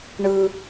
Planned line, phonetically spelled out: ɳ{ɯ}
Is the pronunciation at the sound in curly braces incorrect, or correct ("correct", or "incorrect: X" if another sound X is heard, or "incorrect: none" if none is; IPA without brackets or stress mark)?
correct